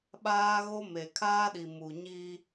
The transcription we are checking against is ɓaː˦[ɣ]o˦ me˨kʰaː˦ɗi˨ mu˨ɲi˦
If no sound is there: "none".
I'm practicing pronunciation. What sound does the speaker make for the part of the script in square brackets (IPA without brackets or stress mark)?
ɣ